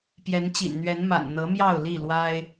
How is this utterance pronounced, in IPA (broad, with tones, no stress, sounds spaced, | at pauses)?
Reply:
p j ɛ˨˦ n t͡ɕ ḭ˨˩ n n̪ ɥ ɛ˨˦ n m a̰˨˩ n n̪ ɤ˨˦ m j ɑ˥˨ ʊ̯ l i˥˨ l w a˦ ɪ̯